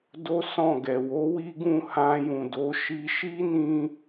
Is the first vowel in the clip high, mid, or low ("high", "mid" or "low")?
mid